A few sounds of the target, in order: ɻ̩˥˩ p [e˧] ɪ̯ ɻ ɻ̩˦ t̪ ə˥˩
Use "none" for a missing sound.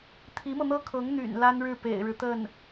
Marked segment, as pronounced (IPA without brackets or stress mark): ḛ˨˩